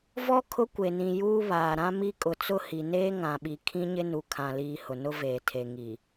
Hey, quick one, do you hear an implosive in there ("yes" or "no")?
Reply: yes